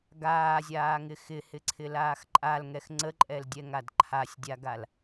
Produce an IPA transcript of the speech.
ɡ aː zʲ aː ŋ ɪ x ɪ h ɪ ǀʰ ɪ l aː x ǃʼ a l ŋ ɛ x ŋ͡ǀ ə ǃʼ ɛ l dʲ ɛ ŋ a d ǃʰ a sʲ dʲ a ɡ a l

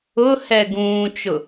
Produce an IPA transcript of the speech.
ʊ h ɛ ɡ ũː t͡ʃ ʊ

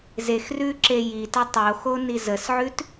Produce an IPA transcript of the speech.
z e x r ʉ ǁ e j i t ə tˤ o x o n i z ə s ʕ ʉ t

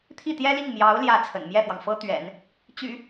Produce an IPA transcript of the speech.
t̪ʰ i˥˩ t̪ j ɛ˥ l i˥˩ ŋ m j ɑ˧˥ ʊ̯ l j ä˥˩ t͡sʰ ə̰˨˩ n m j ɛ˥˩ f w ɑ˩ ŋ f ɤ˥ t̪ ɥ ɛ̰˨˩˦ n | t͡ɕ y̰˨˩˦

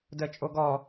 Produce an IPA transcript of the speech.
d ə t͡ʃʼ o ɡ ɔ

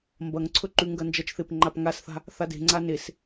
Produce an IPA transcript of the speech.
m b ɐ ŋ ǀʰ ɵ ǃ ʉ ŋ ɡ ɐ n d͡ʒ ɐ t͡ʃ θ e p ŋ͡ǃ a p ŋ a s θ a̤ | θ a d e̤ ŋ͡ǀ a n e s

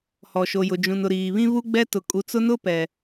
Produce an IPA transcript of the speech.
h ɔ˨ ʃ o˨ j ʊ˨ d͡ʒ ũ˨ n ʊ˨ ɾ iː˨ β ĩ˦ β u˦ ɡ͡b ɛ˦ t ʊ˨ kʼ u˨ t͡s ʊ˦ n ʊ˦ p ɛ˨

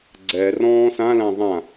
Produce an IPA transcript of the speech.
ɡ͡ǀ ɛ r ɔ̃ː s ã l ã ðˤ ã

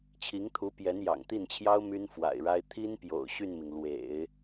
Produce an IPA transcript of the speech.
t͡ɕʰ i˧˥ ŋ t̪ʰ u˧˥ p j ɛ˧˥ n j ɑ̰˨˩ ŋ t̪ i˥˩ n t͡ɕʰ j ɑ˥ ʊ̯ m y˥ n f w a̰˨˩ ɪ̯ ɻ a˥ ɪ̯ t̪ʰ i˥ n p j o̰˨˩ ʊ̯ ɕ y˥˩ n m i˩ ŋ l w ḛ˨˩˦ ɪ̯

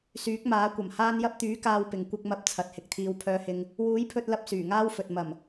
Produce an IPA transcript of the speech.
s yː˨˥ k̚ m aː˨˥ kʷ ɐ˨˩ m h aː˧ n j ɐ˧ p̚ t̪ yː˨˥ k aː˧ w p ɪ˨ ŋ kʷ ɪ˧ k̚ m ɐ˧ p̚ t͡sʰ ɐ˨˥ t̚ h ɪ˨ k̚ t̪ʰ iː˧ w pʰ œː˧ h ɪ˧ ŋ | w uː˨˥ j pʰ ɵ˧ t̚ l ɐ˧ p̚ s yː˨˩ ŋ aː˥ w f ɵ˨ t̚ m ɐ˨˩ m

